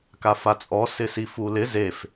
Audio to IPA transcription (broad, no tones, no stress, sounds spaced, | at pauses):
k a f a t͡sʼ ɔ s ɪ s i f u l ɪ z e f